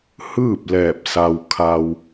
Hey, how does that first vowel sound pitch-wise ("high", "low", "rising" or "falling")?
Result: falling